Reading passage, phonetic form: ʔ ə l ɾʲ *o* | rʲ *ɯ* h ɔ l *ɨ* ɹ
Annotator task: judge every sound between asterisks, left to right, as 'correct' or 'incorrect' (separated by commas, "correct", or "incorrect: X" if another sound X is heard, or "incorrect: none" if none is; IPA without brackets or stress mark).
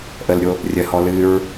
correct, incorrect: ə, correct